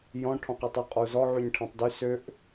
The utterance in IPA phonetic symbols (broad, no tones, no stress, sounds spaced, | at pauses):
j ɔ̃ ʈʰ ɔ̃ q i tˤ y qʼ ɔ u̯ z ɔ ʕ y ɲ ʈʰ ɛ̃ tˤ d y s ø ʔ